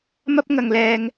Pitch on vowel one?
high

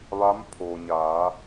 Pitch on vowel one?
rising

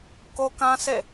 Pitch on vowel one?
high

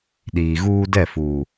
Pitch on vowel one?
low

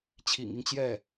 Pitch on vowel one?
low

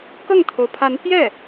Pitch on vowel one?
falling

